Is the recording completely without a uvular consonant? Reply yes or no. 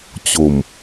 yes